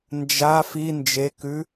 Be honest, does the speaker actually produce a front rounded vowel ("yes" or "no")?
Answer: no